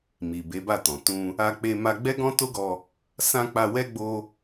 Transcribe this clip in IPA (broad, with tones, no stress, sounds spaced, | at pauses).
m i˨ b e˨˦ b a˦˨ t ɔ̃˨ t ũ˧ | a˧ k͡p e˧ m a˧ ɡ͡b ɛ˦ ɡ ɔ̃˦ t o˦ ɡ ɔ˧ | s ã˧ k͡p a˧ w ɛ˦ ɡ͡b o˦